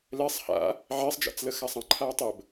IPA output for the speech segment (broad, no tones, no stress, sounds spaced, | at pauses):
l ɛ sˤ h a̰ | ʕ e sˤ d͡ʒ a̰ t͡s l ə x a sˤ ɐ̃ ǃʰ aː tˤ ə b